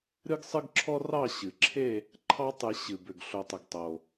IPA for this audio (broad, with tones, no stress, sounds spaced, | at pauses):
ɾ ɨ˦ ɡ sˤ ɨ˦ ɡ ǁʰ ɔ˦ r ɑ˦˨ ɕ ɨ˩ ǁʰ e˦˨ | ǃʰ ɑ˦ tˤ ɨ˨˩˦ ɕ ɨ˩ b ʏ˩ ɡ ɬ o˩ tˤ ʏ˩ ɡ tˤ o˩